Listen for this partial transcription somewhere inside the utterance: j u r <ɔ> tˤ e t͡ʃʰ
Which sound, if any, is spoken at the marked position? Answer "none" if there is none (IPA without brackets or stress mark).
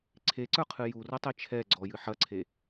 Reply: ɤ